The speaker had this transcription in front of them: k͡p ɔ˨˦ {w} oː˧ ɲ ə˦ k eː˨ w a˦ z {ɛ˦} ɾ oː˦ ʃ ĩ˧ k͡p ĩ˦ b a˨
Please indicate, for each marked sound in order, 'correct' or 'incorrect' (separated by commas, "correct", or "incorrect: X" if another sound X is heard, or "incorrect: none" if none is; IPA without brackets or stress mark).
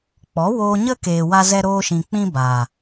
correct, correct